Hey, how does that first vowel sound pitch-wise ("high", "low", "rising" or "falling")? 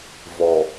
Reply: low